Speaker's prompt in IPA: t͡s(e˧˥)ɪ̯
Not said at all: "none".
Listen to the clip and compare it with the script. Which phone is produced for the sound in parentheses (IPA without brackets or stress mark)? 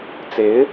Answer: e˧˥